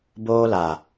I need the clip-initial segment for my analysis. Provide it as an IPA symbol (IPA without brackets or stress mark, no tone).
b